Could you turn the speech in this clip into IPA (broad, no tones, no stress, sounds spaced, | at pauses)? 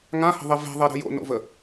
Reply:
ŋ ã h ə̤ ðˤ e v e̤ ðˤ e ɾ ə̤ j o̰ n o̰ v ə